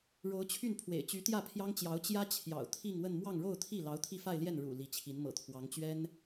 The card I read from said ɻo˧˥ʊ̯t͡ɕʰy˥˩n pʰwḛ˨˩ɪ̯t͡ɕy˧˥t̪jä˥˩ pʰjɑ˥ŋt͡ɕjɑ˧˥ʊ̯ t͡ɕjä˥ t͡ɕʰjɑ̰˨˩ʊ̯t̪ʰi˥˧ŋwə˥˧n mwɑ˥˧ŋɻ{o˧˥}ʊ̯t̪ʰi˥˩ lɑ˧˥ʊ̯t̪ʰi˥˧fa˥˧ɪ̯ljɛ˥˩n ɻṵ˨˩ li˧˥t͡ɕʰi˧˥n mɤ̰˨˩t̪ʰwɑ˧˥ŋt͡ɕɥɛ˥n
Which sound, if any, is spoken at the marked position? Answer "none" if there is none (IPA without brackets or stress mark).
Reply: o˥˧